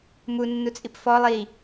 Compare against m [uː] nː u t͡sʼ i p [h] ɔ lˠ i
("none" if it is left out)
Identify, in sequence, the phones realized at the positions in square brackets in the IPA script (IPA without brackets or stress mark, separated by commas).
u, f